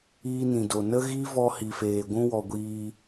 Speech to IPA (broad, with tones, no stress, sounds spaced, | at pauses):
iː˧ n ĩ˨ d o˨ n ə˦ ɣ i˦ v ɔ˧ h i˨ f eː˨ ɡʷ ũ˧ w ɔ˨ ɡʷ iː˧